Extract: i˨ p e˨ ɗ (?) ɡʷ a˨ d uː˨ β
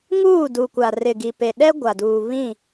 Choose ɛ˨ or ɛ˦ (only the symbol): ɛ˦